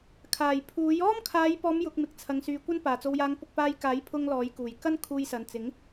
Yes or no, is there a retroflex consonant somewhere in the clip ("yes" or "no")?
no